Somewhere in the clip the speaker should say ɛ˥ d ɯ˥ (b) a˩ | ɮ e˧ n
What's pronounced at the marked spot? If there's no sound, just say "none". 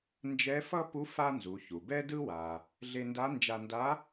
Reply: w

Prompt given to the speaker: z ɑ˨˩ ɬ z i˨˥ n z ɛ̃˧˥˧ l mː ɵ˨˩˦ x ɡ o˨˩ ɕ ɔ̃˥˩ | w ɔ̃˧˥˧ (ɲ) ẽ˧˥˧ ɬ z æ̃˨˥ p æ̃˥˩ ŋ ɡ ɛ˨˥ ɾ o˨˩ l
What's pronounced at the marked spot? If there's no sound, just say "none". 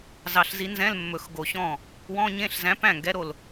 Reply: ɲ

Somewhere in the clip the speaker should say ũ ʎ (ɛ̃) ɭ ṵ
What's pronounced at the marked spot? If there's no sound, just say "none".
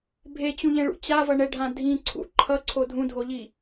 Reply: ɛ̃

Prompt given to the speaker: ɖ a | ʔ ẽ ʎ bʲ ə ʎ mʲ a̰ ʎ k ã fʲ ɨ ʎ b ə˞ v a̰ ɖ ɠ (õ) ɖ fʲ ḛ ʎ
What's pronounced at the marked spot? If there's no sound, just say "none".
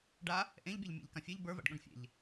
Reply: õ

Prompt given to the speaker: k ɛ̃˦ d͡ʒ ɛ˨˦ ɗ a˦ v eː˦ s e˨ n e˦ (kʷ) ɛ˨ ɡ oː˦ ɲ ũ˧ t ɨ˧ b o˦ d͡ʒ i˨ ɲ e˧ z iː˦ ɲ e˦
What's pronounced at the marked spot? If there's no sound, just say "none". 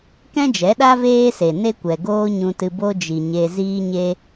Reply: kʷ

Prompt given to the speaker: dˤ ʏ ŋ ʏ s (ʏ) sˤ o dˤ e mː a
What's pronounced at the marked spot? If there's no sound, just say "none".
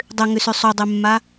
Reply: ʏ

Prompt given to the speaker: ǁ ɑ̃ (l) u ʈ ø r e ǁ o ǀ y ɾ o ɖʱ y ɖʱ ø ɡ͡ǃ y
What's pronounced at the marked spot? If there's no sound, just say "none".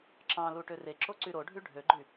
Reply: l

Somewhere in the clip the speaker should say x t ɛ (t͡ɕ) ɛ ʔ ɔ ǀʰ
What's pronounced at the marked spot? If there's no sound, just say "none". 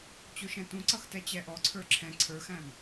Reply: t͡ɕ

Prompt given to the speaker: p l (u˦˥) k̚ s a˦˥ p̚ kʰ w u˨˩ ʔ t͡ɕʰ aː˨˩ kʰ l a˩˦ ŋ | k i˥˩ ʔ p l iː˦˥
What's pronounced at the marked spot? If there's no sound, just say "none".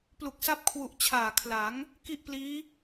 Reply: u˨˩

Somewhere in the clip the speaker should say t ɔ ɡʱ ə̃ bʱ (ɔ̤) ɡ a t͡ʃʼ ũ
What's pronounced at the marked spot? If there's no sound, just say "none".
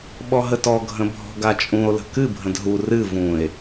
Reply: ɔ̤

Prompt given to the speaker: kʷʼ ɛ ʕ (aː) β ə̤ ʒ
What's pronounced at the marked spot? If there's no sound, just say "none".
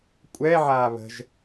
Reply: aː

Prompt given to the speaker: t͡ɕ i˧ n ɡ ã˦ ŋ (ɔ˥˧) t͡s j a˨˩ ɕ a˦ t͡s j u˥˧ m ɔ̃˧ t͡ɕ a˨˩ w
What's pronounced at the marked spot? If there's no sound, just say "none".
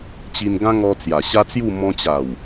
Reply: ɔ˧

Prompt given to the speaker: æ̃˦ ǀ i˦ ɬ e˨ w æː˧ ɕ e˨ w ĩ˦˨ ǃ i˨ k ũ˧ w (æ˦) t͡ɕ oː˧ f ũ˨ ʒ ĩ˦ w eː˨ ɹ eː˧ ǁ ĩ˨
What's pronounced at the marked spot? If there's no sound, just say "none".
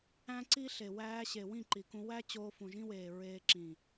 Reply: æ˦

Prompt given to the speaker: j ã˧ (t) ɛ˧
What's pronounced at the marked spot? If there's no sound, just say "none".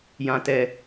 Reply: t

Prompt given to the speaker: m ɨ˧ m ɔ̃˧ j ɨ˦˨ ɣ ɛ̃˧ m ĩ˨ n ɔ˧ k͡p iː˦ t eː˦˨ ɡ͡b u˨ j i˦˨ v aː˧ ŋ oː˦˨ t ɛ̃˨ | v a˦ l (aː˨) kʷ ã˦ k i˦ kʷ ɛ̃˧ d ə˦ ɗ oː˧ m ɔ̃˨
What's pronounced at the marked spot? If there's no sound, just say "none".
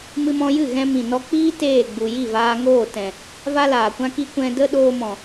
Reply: aː˨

